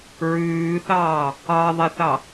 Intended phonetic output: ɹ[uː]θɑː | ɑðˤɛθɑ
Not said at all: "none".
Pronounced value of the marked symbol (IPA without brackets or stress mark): ʉː